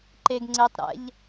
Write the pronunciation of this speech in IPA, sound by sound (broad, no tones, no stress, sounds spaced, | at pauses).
ǃ e ɡ ŋ͡ǀ e tˤ ɾ ɛ̰ ʎ